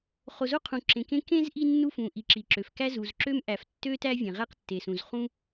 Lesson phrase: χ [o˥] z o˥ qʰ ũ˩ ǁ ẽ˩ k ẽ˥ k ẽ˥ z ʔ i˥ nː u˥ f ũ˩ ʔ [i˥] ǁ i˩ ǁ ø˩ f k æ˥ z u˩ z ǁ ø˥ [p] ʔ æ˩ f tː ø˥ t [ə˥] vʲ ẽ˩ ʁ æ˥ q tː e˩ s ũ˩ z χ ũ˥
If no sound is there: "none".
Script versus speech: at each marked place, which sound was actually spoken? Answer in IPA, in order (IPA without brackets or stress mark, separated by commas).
o˩, i˩, m, æ˥